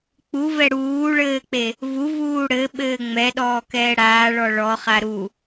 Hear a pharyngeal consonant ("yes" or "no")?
no